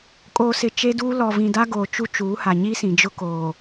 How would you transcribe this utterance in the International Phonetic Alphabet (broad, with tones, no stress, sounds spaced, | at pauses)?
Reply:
kʼ oː˨ s ɪ˨ t͡ʃ e˦ d uː˦ l ɔ˨ v ĩ˨ d a˦ ɡ oː˨ t͡ʃ u˦ t͡ʃ uː˨˦ h a˨ ɲ i˦ s ĩ˨ d͡ʒ ʊ˦ k oː˨